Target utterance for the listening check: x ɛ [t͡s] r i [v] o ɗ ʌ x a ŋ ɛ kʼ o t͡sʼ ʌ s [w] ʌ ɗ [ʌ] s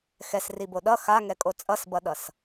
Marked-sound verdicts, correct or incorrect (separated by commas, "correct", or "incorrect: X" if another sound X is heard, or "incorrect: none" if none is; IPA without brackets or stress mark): incorrect: s, incorrect: b, incorrect: b, correct